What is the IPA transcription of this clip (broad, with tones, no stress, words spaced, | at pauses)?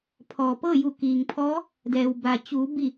pʰɔː˩pɤː˥˨ju˧˩ kiː˩ŋpʰɔː˧˥ | dɛː˩wba˩ t͡ɕuː˩˧ bi˧˩